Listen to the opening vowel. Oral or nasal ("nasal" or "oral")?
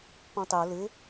nasal